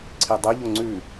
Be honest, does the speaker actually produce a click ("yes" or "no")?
yes